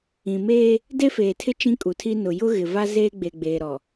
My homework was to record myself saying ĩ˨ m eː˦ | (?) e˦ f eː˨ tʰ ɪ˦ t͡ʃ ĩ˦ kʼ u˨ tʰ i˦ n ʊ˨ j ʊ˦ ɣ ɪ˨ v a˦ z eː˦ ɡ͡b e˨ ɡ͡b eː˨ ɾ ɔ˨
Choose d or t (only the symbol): d